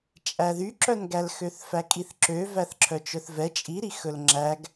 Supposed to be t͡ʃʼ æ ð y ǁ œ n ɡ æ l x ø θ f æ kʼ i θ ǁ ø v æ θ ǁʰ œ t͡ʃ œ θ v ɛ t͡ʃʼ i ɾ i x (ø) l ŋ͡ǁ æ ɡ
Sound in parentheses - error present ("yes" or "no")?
yes